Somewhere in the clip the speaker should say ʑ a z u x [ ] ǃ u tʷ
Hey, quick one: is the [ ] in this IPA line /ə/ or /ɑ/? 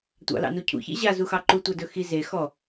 ɑ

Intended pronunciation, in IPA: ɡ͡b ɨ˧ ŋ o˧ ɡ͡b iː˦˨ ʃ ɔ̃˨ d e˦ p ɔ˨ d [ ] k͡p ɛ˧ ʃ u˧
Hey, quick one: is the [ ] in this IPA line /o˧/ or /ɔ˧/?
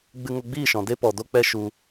o˧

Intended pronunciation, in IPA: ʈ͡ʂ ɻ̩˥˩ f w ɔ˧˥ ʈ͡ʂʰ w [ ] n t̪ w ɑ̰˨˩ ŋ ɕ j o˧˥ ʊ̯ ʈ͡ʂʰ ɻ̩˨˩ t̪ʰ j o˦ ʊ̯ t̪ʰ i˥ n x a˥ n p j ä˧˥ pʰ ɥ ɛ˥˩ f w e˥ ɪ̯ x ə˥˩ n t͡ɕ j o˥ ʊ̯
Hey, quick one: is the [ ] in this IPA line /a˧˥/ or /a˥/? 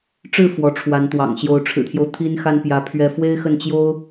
a˧˥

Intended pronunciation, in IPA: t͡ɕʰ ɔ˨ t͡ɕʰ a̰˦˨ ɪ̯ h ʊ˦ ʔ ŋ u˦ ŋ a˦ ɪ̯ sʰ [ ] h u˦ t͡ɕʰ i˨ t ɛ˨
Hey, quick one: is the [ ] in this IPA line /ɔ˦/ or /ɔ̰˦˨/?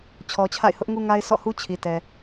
ɔ̰˦˨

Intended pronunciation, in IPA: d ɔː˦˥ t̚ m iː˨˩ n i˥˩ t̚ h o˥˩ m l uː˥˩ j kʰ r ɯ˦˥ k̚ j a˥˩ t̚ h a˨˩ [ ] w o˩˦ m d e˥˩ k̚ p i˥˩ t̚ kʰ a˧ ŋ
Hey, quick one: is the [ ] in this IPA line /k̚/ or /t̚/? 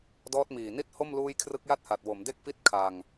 t̚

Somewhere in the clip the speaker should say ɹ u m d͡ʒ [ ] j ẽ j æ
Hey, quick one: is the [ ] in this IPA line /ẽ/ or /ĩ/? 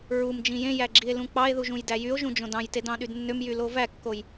ĩ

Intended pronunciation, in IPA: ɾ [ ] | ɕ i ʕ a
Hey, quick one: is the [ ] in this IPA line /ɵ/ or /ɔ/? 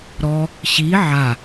ɔ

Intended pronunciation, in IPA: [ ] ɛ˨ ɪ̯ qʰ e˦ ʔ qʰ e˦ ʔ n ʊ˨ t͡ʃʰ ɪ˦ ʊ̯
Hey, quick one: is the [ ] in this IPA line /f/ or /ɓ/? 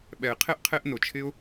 ɓ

